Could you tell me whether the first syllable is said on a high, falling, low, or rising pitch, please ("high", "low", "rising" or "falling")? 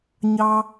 high